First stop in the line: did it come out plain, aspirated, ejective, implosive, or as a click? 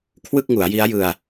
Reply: aspirated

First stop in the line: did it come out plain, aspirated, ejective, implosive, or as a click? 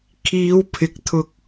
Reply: aspirated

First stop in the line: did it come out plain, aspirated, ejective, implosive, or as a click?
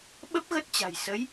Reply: implosive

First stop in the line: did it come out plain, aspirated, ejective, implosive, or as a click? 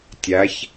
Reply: plain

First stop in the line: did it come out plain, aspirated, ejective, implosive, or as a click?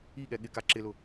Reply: implosive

